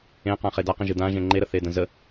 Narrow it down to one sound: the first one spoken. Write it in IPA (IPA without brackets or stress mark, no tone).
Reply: ẽ